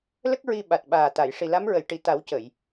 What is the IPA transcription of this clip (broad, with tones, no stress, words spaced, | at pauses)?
lə˦˥k̚ ɹi˧ ɓa˨˩t̚ɓaː˨˩t̪a˨˩˨j ʂi˨˩la˧˥mɹə˨˩˨jʈi˨˩˨ t̪a˨˩˦w cə˨˩˨j